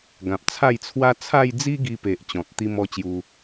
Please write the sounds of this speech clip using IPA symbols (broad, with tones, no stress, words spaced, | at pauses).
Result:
ɡã˨p̚t͡sʰa˥˧jt͡sʰwa˦ t͡sʰa˥˧jd͡zi˦ɡi˧pe˨ʔ t͡ɕɔ̃˨t̚t̪i˦mɔ˥˧ t͡ɕju˧